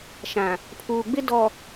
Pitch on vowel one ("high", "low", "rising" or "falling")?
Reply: low